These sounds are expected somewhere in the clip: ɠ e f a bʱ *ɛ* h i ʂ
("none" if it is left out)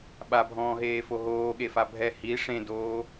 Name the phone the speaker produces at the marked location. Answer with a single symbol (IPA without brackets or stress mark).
ɛ